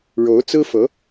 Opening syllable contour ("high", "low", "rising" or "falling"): rising